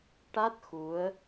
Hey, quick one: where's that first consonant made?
retroflex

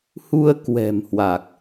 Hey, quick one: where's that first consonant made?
throat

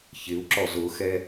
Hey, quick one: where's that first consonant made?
palate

